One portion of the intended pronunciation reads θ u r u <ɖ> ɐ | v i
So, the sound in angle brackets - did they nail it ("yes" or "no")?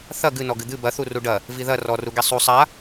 yes